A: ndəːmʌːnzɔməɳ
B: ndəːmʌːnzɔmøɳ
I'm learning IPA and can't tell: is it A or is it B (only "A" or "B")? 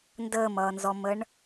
A